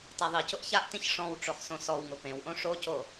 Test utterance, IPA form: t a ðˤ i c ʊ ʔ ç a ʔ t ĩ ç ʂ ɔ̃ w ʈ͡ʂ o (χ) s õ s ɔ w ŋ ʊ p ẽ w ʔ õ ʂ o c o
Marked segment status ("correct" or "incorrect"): correct